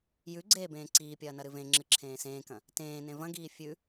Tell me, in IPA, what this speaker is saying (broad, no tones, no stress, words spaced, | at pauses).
jʉ ɡ͡ǀeːbẽːǀiːpʲɐː nɐɾɨvẽŋ͡ǁɨ ǁʰẽːsẽːkɐ̃ | tẽːnẽ vɐ̃ɡiː fʲʉ